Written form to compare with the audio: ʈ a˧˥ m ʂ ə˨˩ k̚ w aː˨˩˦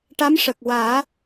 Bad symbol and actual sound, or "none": none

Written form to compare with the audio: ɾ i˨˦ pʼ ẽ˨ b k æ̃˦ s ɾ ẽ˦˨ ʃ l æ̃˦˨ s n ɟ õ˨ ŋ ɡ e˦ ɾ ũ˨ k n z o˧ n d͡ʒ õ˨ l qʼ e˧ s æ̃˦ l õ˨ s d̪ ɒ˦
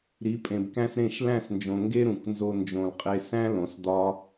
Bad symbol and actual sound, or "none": ɟ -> d͡ʒ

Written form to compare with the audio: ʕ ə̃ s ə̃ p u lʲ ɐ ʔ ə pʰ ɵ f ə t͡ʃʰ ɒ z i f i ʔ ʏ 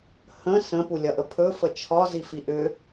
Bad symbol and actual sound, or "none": ʕ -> h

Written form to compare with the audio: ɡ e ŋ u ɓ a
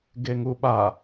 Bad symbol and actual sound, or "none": none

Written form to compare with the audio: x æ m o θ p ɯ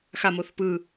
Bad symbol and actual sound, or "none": æ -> a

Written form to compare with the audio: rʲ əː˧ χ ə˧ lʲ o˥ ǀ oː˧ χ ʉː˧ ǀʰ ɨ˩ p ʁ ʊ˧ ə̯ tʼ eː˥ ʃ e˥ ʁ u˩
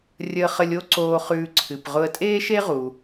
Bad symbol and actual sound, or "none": none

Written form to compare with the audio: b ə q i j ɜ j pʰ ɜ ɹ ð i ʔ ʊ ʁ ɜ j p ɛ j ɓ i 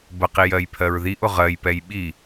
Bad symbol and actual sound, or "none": none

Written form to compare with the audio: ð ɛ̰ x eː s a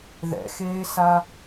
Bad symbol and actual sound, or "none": none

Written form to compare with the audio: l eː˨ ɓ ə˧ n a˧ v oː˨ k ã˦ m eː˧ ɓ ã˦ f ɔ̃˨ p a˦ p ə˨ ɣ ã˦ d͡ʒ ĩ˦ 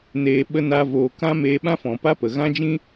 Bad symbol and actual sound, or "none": l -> n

